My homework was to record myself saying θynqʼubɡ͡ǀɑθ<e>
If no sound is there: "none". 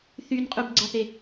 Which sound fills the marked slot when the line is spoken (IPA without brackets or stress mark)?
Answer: e